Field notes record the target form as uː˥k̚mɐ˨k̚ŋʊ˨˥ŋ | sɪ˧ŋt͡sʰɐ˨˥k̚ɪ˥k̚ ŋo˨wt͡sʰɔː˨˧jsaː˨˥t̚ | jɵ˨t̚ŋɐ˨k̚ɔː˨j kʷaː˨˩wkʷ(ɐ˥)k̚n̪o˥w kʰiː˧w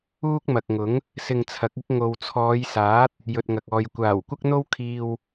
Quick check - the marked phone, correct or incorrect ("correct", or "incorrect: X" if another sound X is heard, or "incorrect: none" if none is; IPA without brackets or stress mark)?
correct